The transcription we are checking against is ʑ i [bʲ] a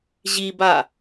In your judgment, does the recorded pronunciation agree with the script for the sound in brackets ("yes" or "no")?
no